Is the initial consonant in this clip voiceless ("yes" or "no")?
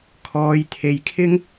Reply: yes